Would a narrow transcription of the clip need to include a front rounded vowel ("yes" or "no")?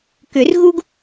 yes